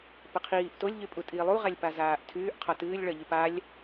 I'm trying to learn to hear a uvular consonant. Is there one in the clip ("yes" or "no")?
yes